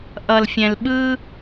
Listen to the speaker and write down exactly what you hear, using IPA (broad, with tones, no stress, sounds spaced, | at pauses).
ʔ ʌ˨ l fʲ ɛ̃˨ l ɓ ɯ˦